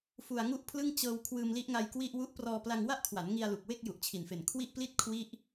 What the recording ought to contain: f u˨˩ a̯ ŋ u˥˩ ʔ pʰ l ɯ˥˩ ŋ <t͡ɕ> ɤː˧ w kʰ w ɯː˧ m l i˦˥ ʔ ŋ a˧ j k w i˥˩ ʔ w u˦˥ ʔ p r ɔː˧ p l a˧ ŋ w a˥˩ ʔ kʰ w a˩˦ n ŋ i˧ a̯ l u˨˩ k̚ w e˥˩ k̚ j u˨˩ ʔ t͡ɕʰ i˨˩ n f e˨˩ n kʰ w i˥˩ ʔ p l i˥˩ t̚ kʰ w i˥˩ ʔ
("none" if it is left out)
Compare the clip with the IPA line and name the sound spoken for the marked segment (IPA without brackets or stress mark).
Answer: t͡ɕ